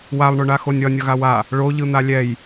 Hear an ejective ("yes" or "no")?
no